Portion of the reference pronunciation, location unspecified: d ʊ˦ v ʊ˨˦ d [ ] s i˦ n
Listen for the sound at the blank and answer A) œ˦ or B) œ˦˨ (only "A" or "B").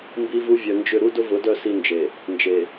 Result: B